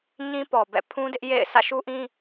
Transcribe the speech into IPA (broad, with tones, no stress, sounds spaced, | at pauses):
ɲ ĩ˦ p ɔ˨ b ɛ̰˦˨ pʰ ũ˦ d ɪ˦ ʔ j ḛ˦˨ ɪ̯ sʰ ä̰˦˨ ʃ u˦ ʔ ĩ˦